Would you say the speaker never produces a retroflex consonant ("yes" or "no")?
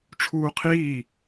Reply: no